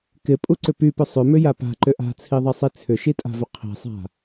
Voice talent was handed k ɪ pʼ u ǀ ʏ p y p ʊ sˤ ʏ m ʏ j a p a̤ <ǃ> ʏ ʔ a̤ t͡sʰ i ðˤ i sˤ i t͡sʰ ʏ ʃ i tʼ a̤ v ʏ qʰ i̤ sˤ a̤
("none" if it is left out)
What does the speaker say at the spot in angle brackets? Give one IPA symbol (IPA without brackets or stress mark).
ǃ